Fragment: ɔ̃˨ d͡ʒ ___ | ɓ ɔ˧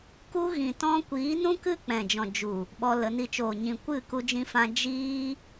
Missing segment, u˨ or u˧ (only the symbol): u˨